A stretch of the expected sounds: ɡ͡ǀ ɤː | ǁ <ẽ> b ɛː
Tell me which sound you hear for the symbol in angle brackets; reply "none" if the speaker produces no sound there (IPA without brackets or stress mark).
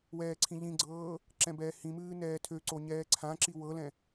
ɛ̃